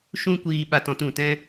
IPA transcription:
ʃũ˦kʷiː˧ ɓa˧tɔ̃˧tũ˨tɛ̃˦

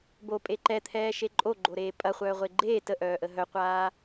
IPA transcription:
bopʼe ǃɛt̪ʰɛːʃe ǃʼoɡ͡ǃoɾeː pʼɐχʷœːʁʷe ɡ͡ǃeː təʔœːʔə ɦœqʷaː

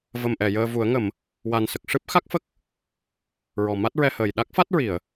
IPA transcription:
və˨˩mʔɛ˨˩˨ jəː˧vu˨˩˦ə̯ ŋə˨˩˨m | wa˨˩nsə˨˩k̚ ʂɨ˦˥p̚ xa˦˥k̚fə˦˥k̚ | ɹɔ˨˩ma˦˥t̚ɹɛ˧həː˨˩j ɗa˦˥k̚fa˦˥t̚ ɹi˨˩˨ə̯

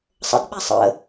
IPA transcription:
sˤə̰d ɓɛsˤə̰

